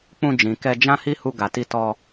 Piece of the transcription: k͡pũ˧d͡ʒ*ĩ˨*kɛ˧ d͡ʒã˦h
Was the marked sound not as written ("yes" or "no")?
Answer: no